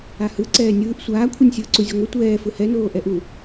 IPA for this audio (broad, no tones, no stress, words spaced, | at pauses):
ahɯ ǀɛːnʲɯːʔ sʷaːkʷʰɯnʲ sʲɯːǀuzʲoŋʷi tʷɛː fɯhɛnoː ʔɛʔu